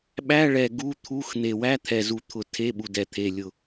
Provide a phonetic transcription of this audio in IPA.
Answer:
ɓæ˧˥˧ɭɛ˨˩ ɡu˧˥˧t̪ʰu˧˥˧x n̪e˨˩wæ˧˥˧t̪ʰɛ˨˩zu˨˩ t̪ʰʊ˨˩ tʰe˧˥˧ɓu˨˩dɛ˨˩ t̪ʰe˨˩lʲʊ˨˩

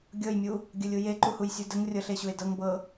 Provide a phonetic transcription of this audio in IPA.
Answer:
ɡʲɤjmʲu | ɡʲəlʲu jeǃuhujsʲu dəŋ rʲɤɬeɕue̯ dɤŋ bɤ

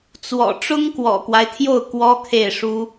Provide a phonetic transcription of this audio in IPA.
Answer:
t͡swɔ̰˨˩ ʈ͡ʂʊ˥ŋkwɔ̰˨˩kwa˦ɪ̯t̪ʰjo˥˩ʊ̯ kwɔ˥kʰe˥˩ɪ̯ʂu˥

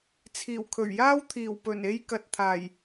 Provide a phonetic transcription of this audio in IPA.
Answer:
t͡sʰiː˨˩wkʰɵ˨˩ɥjaː˥wt̪ʰiː˨˩w pɵ˨˩ne˧jkɐ˨t̚ t̪ʰaː˨˩j

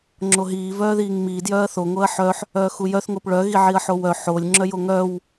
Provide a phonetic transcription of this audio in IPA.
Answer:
ŋ͡ǁoɦiː vœːðiːŋmi djœːɐ̯θo ŋoɐ̯ħœħ | œːxujœθ ŋopɭœ ɣiʕiɐ̯ħowœ ħolʲ ŋ͡ǁœjoŋœw

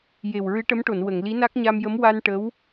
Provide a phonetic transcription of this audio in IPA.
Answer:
je˨˩wɹɨ˧˥ʈə˧˥mʈo˨˩˨n wə˨˩˨ŋli˧˥na˦˥k̚ ɲa˧mjə˧˥m wa˧n ʈə˧˥w

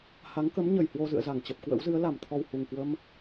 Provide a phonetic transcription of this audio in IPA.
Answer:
ha˨˦ŋ kə˨˦m ɲə˨˩jhwo˧zɨ̰˧˨ə̯ za˧˩ŋt͡ɕə˨˩p̚kwə̰˧˥wzɨ˨˦ə̯ la˧˩mt̪ʰɔ˨˩w hu˨˩ŋkwə˧m

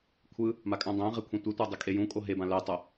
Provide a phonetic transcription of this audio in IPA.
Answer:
kʷʰɯ | makʼãdˤæ̃ʁe kʷʰẽtʷetʷæ dˤɪkʼejũkʼo ɦebã lɛtˤo

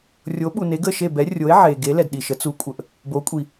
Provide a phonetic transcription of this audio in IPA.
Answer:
rʲo˨˥ɓu˨ne˨˥ɡ ə˦˨ʃe˦˨bɛ˨˥rʲo˨˥e̯ ʕe˨ɡe˨˥ lɛ˨dɗi˨ʃə˨˥ t͡su˨˥kʷʼə˨ʔ | bo˨˥kʷʼi˨

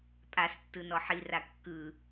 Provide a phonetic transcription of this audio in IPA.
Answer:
pʼas tːɯnɔħira kːɯ

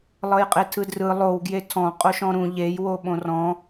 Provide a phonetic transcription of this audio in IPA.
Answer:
lˠɤjqʼetʰɯdrɯ lˠow ɡjetʰɔ̃ qʼoʃɔ̃ɾũ ʎej woɓõrɔ̃

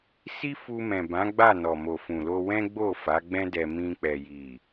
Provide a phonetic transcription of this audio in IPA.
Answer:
si˦fu˧mɛ̃˨bã˨˦ ɡ͡ba˦˨ nɔ˨mo˨fũ˨lo˧ wɛ̃˦ ɡ͡bo˦˨fa˨˦ɡ͡bɛ̃˦dɛ˧ mĩ˧k͡pɛ˨ji˨

